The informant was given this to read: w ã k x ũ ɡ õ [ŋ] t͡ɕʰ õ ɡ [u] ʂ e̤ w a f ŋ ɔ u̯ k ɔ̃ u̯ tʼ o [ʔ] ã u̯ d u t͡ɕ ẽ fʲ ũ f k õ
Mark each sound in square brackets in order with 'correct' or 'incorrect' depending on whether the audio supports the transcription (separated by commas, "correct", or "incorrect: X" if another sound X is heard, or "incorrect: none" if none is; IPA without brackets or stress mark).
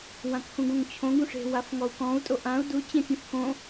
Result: correct, incorrect: ũ, correct